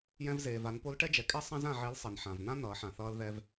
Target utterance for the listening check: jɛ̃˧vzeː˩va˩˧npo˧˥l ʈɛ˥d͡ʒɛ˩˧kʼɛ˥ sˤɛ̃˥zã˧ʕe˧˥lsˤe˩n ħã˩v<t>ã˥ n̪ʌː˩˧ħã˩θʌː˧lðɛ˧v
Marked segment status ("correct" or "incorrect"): incorrect